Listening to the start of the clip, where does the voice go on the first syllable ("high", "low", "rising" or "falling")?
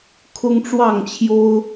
high